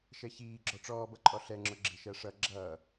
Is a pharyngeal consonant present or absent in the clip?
absent